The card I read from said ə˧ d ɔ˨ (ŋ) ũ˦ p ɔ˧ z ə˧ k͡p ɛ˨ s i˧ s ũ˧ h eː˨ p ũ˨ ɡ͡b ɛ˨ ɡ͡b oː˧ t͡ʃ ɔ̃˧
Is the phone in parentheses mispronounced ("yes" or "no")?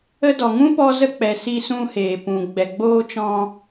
no